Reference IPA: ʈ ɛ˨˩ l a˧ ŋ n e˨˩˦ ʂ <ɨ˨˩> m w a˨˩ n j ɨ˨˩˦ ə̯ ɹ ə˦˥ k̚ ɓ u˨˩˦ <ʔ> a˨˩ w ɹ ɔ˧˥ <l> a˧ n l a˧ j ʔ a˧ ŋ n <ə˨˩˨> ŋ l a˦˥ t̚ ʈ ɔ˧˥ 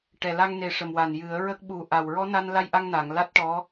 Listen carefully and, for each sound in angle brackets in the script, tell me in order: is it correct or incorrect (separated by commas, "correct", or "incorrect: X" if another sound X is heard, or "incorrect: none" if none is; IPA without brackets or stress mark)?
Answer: incorrect: ə˨˩, correct, incorrect: n, incorrect: a˨˩˨